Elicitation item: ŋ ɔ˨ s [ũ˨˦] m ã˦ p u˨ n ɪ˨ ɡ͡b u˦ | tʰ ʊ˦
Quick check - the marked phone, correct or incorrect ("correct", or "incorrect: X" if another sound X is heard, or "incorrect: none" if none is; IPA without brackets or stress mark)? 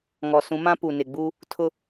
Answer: correct